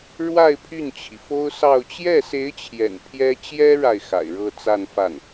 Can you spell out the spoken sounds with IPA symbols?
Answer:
ɻwa˥˧ɪ̯ pʰy˥˩nt͡ɕʰi˩fo˥ʊ̯sɑ˥˧ʊ̯ t͡ɕjɛ˥˩se˧˥ɪ̯t͡ɕʰjɛ̰˨˩n pʰjɛ˥ t͡ɕjɛ˥ɻa˨ɪ̯ xa̰˨˩ɪ̯ɻɤ˥˧ t͡sa˥˧nfa˥˩n

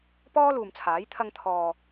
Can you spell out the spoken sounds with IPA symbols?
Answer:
pɔː˥luː˨mt͡sʰaː˨˥j t̪ʰɐ˧ŋt̪ʰɔː˨

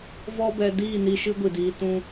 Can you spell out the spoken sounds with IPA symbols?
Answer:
vɔ˦bɛ˧ diː˦˨ni˧ʃɨ˧ ɡʷi˨diː˧ tũ˧

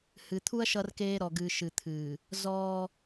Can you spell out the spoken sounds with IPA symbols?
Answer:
hɨ˨t̪ʰu˦ɐ̯ ʃʌ˦rkeː˦ ɾɔ˨ɡɨː˨ ʃɨ˨t̪ʰɨː˨ | zɔː˦

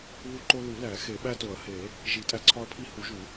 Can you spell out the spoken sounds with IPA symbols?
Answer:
βu˦ǃo˦ lu˨˩˦læ˨˩˦ xe˨˩˦ɓæ˦to˨˩˦ɐ̯ he˨˩˦ | ʒi˨˩˦tʼæ˦ǀʰɒ˦ɐ̯pʰi˦ hu˨˩˦ʒu˨˩˦

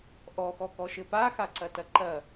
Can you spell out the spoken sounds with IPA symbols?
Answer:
ʔɔxɔkɔʃɘ paxaǀɐtɐ ǃɐ

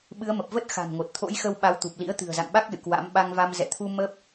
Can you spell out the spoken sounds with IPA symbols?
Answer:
ɓɨ˨˦ə̯mə˨˩p̚və˦˥t̚ xa̤˨˩nŋo˨˩t̚ t̪ʰo̰˧˥jxə˧w ɓa˨˦wt̪u˨˩p̚lḭ˧˥ə̯ t̪ɨ̤˨˩ə̯za̰˧˨ŋɓa˦˥k̚ lɨ̰˧˨kwa̰˧˥m ɓa˧ŋva˧m zɛ̰˧˨t̪ʰu˧ mə˦˥p̚

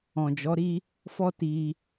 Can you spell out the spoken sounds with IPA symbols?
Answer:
ɔ̃˨d͡ʒɔ˨˦ɾi˦ | fɔ˦ti˧

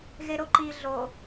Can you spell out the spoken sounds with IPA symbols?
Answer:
ɣeɾoǃi ɮo

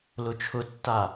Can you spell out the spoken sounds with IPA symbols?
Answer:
lʊt͡ʃʰʊtːa

